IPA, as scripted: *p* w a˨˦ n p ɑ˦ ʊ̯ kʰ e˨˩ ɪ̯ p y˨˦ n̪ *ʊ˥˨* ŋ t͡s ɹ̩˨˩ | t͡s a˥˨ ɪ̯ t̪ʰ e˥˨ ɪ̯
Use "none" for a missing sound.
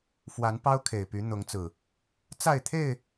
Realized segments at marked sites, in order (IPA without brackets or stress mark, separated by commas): f, ʊ˨˦